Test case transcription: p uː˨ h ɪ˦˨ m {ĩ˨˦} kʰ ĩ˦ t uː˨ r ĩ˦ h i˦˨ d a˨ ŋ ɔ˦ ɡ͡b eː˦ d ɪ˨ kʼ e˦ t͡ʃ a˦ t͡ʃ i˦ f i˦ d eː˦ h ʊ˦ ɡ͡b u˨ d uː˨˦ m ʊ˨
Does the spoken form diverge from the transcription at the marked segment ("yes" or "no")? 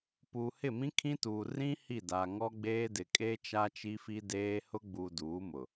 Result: yes